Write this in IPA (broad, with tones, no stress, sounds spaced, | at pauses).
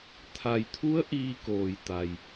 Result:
t̪ʰ a˩ j t̪ʰ u˧˥ ə̯ ʔ iː˧ k oː˩ j t̪ a˩ j